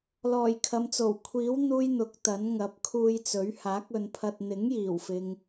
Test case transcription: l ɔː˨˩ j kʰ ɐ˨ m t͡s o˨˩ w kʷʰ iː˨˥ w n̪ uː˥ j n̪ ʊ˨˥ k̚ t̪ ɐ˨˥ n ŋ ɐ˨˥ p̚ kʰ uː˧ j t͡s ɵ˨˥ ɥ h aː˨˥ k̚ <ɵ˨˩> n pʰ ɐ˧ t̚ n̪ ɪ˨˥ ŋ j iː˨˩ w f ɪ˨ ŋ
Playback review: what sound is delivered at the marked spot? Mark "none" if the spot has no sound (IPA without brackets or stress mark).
ɵ˨˧